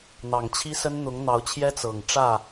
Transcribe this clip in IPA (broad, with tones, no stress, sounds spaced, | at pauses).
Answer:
n̪ ɑ˨˩ ŋ t͡ɕʰ i˦ s ə˦ n n̪ ʊ˨˦ ŋ n̪ ɑ˨˦ ʊ̯ t͡ɕʰ j ɛ˦ t͡s ɤ˨˩ ŋ ʈ͡ʂ ä˥˨